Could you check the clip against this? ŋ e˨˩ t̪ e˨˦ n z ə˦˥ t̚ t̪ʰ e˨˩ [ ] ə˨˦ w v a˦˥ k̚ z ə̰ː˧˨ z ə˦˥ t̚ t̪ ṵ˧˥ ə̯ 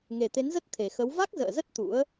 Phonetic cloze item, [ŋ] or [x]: x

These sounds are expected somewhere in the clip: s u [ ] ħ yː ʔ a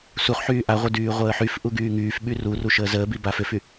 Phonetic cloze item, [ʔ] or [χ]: χ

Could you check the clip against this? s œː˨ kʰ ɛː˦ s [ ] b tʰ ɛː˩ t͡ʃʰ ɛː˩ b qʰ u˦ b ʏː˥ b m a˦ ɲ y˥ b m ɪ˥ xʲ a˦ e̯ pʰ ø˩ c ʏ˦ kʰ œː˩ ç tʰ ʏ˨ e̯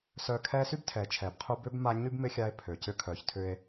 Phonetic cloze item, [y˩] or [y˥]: y˥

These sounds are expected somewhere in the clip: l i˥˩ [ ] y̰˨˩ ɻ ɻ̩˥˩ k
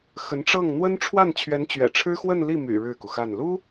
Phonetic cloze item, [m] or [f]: m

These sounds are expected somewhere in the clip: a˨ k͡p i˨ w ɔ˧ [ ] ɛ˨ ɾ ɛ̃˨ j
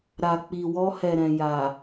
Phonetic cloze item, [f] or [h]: h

